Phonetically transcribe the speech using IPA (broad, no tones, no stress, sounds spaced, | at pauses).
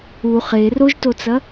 u χ e r o ʒ t o t͡s ɐ